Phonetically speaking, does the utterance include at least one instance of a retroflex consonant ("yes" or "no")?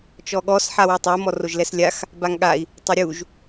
no